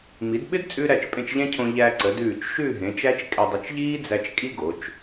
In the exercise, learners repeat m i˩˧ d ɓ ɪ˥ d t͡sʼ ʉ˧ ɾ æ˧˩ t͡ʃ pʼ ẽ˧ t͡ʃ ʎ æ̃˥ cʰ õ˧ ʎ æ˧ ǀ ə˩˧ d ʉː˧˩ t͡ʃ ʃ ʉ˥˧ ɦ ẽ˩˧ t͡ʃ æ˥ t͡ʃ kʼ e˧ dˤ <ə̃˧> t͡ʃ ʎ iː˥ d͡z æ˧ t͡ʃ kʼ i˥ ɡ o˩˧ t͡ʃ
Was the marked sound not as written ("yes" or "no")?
yes